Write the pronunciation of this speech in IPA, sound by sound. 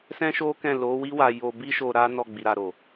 s ɛ̃˦ ʃ o˦ k ɛ̃˦˨ l o˨˦ w i˦ w a˧ j o˧ b i˦ ʃ o˧ ɾ a˦ n ɔ˦˨ ɡ͡b i˨ ɾ a˨ ɾ o˨

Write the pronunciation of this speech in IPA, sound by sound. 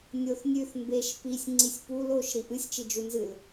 nʲ o θ nʲ ʉ θ m b e ʃ p i sʲ ŋ͡ǀ i sʲ p u l o ʃ ɾ i ʔ ɨ sʲ t͡ʃ i d͡ʒ u n z ɨ l

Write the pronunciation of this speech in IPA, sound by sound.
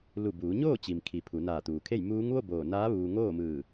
l u˧˩ b uː˩˧ ɲ oː˥˨ t͡ɕ i˩ m kʰ i˩ pʰ u˩˧ n aː˧˩ t̪ uː˩ kʰ e˥˨ j m uː˧˥ ŋ ʋ o˥˨ b oː˧˩ n aː˧˥ ʋ uː˧ ŋ oː˥˨ m ɯː˧˩

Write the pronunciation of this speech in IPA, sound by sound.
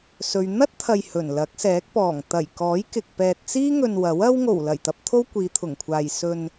s ɵ˧ ɥ n̪ ɐ˥ t̚ t̪ʰ ɐ˨ j h ɵ˨˩ n l ɐ˨˥ k̚ s ɛː˨˥ k̚ p ɔː˨˩ ŋ t̪ ɐ˨˩ j k ɔː˨˥ j k ɪ˨ k̚ p ɛː˨ t̚ t͡s iː˥ ŋ ɵ˨ n w ɐ˨˥ w ɐ˥ w ŋ o˨˩ w l ɐ˨˩ j t̪ ɐ˧ p̚ t̪ʰ o˥ w kʷ iː˨˧ t̪ʰ ʊ˨˩ ŋ kʷʰ aː˨ j s ɵ˨ n

